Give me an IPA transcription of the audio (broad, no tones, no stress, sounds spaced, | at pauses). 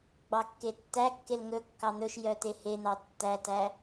ɡ͡b ɑ kː e tː æ kː e l ŋ ɵ kː ɑ n̪ ɵ ʃ j œ t e h e n̪ ɑ tː æ t æ